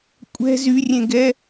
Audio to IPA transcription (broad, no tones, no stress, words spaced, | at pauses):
kʷʼɛ̤ zyrʲẽɡɛ